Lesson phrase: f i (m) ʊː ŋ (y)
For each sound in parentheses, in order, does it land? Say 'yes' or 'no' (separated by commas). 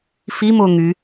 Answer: yes, yes